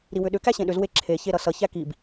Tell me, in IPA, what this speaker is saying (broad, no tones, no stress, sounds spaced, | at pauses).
ɾ i w ʏ ɗ ʏ k æ ɕ ẽ ɗ ʏ z w e ǁʰ e ç e ɾ ʌ s ʌ ç æ k i b